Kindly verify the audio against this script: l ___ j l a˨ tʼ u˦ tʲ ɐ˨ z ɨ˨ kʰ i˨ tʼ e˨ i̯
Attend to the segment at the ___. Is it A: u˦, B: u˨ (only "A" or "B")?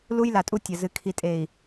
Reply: A